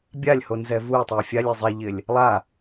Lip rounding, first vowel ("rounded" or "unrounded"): unrounded